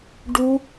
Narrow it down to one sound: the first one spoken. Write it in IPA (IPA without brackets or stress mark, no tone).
ɖ